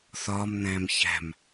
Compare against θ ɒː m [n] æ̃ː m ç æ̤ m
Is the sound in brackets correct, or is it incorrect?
correct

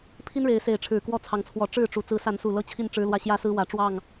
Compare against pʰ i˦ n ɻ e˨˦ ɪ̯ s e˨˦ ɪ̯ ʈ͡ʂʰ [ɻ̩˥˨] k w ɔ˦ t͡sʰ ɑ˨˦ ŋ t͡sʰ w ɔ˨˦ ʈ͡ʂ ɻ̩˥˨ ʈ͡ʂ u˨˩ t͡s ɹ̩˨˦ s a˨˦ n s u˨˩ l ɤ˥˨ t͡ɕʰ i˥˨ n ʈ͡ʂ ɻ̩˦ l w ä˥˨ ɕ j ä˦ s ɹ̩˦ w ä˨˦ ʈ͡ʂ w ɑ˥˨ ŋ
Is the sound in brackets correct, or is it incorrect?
incorrect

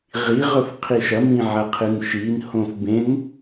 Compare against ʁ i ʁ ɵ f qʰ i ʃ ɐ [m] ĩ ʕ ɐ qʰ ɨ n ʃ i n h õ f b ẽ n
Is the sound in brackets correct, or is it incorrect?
correct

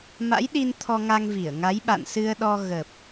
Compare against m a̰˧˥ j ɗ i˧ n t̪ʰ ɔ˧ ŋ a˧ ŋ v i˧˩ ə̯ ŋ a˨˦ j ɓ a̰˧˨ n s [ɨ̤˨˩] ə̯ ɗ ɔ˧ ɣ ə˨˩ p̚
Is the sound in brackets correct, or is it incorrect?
incorrect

